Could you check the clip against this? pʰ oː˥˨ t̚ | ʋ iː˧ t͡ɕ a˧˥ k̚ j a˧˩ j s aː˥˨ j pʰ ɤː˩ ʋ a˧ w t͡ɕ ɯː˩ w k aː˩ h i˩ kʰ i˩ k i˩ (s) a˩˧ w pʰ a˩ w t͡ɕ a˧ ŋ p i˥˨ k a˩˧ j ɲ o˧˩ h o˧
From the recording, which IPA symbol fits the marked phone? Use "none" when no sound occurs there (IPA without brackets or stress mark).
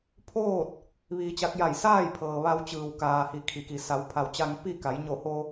s